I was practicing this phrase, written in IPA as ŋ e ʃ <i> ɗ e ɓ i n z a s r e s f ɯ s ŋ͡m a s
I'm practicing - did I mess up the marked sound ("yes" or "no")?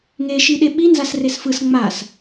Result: no